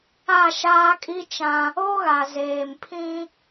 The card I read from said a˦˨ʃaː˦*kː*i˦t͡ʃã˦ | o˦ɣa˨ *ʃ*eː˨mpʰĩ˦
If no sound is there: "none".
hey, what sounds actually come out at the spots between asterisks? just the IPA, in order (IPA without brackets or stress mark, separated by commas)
kʼ, z